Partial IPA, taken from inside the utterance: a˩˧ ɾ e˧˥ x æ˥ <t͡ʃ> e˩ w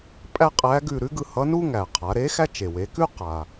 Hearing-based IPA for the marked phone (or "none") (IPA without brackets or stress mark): t͡ʃ